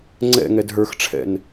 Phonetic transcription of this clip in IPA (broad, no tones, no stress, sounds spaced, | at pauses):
ŋ͡ǀ ɛ̰ ŋ ɛ d ɦ ə˞ x ʈ͡ʂʰ ɛ̰ n